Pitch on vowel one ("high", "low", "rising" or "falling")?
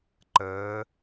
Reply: rising